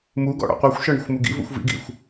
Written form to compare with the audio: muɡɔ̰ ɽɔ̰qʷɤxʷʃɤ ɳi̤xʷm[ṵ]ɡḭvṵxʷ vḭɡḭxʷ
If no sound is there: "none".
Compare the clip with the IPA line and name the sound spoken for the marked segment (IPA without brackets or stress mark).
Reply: u